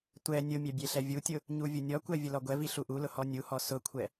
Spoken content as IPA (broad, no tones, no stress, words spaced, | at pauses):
tʷɛ nʲʊmʲɛ bʲeɬɛvʲutʲʊ | ɲuvʲʊnʲɔkʷɛ vʲʊlɔɡʷɛvi ɬuʔulʊ hɔnʲuhɔ sʊkʷʰɛ